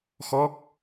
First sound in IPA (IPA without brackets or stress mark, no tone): x